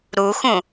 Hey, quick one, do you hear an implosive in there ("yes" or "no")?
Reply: no